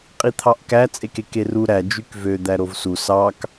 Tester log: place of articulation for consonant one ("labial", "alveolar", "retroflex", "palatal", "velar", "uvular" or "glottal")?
uvular